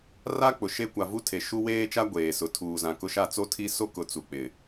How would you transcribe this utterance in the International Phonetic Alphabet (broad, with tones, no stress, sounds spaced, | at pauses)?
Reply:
r a˦ k͡p ʊ˨ ʃ e˦ kʷ a˨ v u˦ tʰ e˨ ʃ u˦ w eː˦ t͡ʃ a˦ ɡʷ eː˨ s ʊ˨ tʰ uː˨ z ã˨ k ʊ˦ ʃ a˦ t͡s o˦ tʰ i˦ s o˦ k ʊ˨ t͡s u˨ k͡p ɪ˨